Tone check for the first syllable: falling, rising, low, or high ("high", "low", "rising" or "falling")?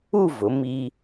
falling